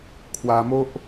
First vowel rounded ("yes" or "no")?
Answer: no